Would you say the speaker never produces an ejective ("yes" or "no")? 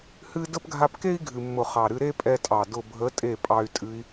no